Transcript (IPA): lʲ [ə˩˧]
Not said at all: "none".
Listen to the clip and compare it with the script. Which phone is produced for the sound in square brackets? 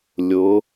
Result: ʊ˩˧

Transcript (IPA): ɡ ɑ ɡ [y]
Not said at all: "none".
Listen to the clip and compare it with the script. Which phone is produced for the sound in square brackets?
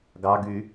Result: y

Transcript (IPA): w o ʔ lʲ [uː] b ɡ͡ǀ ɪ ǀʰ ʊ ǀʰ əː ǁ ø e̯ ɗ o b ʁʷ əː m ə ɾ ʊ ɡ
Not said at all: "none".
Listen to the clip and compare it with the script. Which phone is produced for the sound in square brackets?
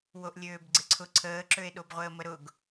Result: øː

